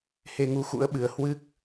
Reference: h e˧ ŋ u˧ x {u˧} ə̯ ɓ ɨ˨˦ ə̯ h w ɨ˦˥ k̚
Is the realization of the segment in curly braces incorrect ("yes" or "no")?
yes